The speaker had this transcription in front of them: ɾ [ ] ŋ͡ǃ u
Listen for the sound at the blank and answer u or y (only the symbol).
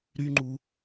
y